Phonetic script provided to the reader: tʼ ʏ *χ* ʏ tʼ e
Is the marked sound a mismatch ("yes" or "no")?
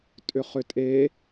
no